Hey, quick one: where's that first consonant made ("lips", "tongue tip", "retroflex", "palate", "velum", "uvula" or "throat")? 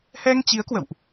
throat